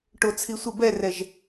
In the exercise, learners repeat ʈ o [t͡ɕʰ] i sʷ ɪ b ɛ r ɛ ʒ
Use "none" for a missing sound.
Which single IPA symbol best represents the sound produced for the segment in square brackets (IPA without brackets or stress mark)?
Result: t͡sʰ